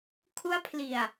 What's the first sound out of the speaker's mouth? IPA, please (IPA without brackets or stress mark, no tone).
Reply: kʰ